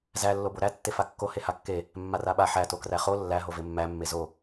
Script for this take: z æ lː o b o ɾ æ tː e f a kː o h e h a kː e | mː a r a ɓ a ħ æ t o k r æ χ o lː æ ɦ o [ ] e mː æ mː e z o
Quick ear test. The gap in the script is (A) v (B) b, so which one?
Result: A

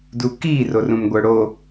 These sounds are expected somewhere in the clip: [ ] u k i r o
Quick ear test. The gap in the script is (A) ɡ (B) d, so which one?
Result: B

